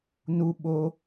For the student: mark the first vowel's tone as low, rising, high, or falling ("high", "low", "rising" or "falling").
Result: high